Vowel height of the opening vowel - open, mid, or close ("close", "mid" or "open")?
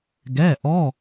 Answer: mid